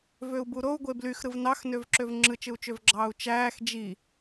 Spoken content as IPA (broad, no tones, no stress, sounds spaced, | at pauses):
v ø u̯ b u ɾ o u̯ ɡʷ e b l y x ɾ ɯ v n ɑ x n ø v ǁ ø v ŋ͡ǁ ɯ t͡ʃ ɯ u̯ t͡ʃ ø v ɡ͡ǁ ɑː u̯ t͡ʃ æː x d͡ʒ i